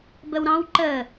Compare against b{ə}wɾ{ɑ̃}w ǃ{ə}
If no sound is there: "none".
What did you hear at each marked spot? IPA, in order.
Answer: ə, ɑ̃, ə

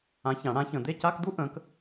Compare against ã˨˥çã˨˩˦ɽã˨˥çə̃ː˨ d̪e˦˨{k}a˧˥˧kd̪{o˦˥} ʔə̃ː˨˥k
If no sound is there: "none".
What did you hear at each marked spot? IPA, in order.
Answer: c, u˦˥

